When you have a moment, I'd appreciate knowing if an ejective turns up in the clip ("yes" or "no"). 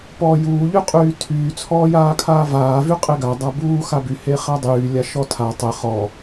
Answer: yes